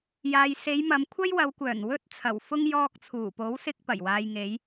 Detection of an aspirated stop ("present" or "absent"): present